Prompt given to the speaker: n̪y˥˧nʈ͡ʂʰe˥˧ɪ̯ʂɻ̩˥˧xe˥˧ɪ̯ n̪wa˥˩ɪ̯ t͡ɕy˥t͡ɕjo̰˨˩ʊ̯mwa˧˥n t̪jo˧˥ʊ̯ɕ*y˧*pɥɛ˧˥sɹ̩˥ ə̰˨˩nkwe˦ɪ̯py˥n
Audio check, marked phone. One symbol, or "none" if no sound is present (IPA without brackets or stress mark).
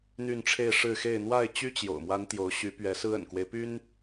y˧˥